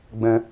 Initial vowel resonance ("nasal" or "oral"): nasal